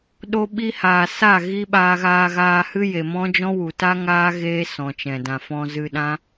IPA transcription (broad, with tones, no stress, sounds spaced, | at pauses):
ɗ o˧ ɓ i˧ h aː˨ s a˦˨ ɣ i˦ ɓ aː˧ ɣ aː˧ ɣ aː˧ h ɨ˦ j e˨ m ɔ̃˦ d͡ʒ ɔ̃˦ w u˨ t a˦ ŋ aː˦ ɣ eː˦ s ɔ̃˨ t͡ʃ ɛ̃˨ d ã˨ f ɔ̃˧ z ɨ˧ ɗ ã˦